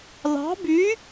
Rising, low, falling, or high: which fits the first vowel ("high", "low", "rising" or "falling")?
rising